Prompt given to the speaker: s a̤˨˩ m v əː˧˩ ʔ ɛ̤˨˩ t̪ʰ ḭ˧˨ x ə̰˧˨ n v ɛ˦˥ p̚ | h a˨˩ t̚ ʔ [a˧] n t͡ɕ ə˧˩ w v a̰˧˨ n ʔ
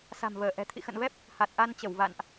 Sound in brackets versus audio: correct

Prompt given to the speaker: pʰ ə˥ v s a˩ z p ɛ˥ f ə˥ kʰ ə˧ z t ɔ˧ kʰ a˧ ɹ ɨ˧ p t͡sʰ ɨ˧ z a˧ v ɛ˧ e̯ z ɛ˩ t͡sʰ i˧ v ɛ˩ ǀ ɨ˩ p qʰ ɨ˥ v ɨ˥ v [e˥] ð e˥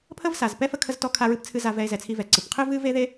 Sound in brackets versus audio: correct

